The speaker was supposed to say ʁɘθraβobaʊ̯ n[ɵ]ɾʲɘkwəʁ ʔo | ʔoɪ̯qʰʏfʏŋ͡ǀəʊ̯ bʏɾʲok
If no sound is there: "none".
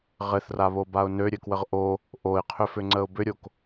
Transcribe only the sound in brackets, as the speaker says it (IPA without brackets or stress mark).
ø